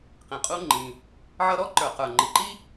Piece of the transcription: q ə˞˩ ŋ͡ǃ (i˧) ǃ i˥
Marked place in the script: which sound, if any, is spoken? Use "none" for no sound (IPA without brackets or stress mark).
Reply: i˩